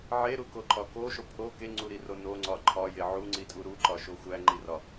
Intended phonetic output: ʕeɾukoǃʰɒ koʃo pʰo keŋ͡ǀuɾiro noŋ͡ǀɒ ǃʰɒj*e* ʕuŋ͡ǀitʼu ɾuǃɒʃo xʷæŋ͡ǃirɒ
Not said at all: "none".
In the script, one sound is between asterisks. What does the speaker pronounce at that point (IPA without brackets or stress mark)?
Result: e